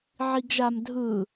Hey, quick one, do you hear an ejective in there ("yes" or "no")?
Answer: no